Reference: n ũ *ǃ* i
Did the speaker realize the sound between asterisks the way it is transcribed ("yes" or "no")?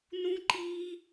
yes